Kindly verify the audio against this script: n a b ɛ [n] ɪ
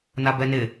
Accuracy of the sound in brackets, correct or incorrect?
correct